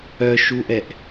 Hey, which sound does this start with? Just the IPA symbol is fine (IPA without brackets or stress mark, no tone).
œ